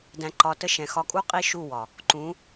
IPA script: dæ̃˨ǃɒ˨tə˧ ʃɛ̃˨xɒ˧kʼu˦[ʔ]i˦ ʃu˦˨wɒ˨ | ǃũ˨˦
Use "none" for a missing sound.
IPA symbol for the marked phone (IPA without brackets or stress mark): qʼ